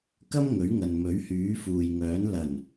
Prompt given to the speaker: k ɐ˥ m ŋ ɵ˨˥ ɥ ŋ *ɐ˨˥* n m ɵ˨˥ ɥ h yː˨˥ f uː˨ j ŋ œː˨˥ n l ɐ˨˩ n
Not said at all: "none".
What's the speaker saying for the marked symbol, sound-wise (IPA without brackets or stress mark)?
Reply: ɐ˨